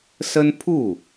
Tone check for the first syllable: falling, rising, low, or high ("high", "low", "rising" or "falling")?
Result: high